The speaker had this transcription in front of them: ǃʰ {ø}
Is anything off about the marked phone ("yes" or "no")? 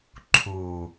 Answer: yes